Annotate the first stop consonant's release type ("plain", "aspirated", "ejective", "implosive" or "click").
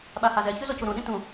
implosive